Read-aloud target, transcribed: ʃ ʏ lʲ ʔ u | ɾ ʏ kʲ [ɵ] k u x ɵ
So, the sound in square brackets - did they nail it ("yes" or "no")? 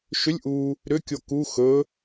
no